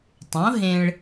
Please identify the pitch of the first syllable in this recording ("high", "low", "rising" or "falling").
rising